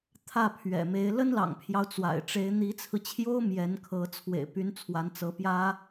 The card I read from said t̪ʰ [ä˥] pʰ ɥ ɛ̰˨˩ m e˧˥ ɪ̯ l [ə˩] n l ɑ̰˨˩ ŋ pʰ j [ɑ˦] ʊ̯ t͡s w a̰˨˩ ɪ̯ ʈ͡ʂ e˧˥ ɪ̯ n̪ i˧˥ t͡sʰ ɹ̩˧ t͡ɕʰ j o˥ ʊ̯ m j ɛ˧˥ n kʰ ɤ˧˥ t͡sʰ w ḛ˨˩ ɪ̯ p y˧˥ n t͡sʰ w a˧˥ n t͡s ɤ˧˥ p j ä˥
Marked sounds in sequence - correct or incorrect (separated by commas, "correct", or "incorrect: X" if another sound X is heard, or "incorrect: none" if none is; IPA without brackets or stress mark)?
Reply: incorrect: ä˥˩, incorrect: ə˥, correct